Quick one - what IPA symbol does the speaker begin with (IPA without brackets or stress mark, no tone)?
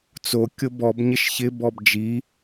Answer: t͡s